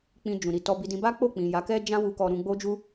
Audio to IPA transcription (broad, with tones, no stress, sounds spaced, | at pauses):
k͡p ĩ˧ d͡ʒ ũ˨ ɾ i˨ t ɔ˧ b i˧ d ĩ˧ b a˦ k͡p o˦˨ k͡p ĩ˨ j a˨˦ k ɛ˦ d͡ʒ ã˦ w u˧ k ɔ˧ ɾ ũ˧ ɡ͡b o˦ d͡ʒ u˦